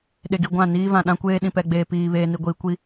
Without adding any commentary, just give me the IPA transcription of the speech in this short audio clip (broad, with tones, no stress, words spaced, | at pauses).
ɗe˨ɡi˨ ɡʷã˦˨niː˦ vã˨ɗã˦ kʷeː˦ɗĩ˨pɛ˨ɡ͡beː˨ piː˨ βeː˨ni˨ɡʷiː˨ kʷi˦